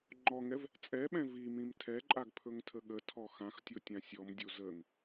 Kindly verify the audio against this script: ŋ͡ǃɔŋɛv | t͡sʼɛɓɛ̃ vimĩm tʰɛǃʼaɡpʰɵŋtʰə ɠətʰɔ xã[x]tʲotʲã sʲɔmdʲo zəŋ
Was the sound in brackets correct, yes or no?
yes